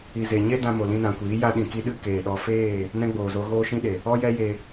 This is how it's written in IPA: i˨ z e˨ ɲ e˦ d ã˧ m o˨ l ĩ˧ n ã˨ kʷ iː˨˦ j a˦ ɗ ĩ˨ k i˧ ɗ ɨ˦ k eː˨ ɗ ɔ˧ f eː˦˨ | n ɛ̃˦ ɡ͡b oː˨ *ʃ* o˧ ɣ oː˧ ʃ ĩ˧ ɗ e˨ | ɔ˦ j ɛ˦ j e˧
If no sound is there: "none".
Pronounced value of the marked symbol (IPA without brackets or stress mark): z